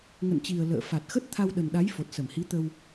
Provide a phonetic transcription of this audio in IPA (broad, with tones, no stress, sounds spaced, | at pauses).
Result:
ŋ ə̰˧˨ n t͡ɕ i˨˩ ə̯ l ə̰ː˧˨ f a˨˩ t̚ x ə˦˥ t̚ t̪ʰ a˧ w ɗ ə˨˩ n ɗ a˨˦ j f o˨˩ t̚ s ə˧˩ m h i˨˦ t̪ ə˧ w